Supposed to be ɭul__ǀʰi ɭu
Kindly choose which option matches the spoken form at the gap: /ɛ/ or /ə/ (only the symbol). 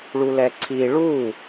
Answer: ɛ